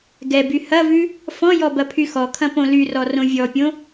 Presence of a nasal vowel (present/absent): present